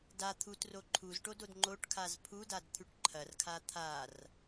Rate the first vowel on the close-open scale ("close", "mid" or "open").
open